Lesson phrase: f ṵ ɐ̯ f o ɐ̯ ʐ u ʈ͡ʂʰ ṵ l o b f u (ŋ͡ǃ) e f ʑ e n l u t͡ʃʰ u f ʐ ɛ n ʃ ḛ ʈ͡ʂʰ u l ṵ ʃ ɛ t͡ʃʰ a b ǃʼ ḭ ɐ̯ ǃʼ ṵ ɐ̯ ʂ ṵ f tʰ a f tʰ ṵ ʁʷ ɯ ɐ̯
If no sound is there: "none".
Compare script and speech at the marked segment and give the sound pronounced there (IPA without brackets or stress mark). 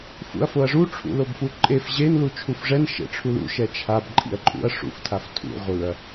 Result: ǃʼ